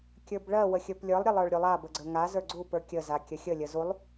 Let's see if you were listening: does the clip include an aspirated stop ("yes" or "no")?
no